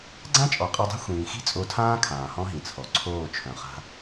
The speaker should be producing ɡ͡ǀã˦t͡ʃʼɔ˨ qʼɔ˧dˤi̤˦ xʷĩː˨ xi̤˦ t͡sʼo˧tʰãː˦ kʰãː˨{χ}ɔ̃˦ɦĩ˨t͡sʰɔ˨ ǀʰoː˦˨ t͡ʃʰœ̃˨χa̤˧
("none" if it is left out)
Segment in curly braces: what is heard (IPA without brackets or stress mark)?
h